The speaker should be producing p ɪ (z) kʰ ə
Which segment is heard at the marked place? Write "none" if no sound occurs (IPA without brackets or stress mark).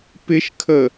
ʃ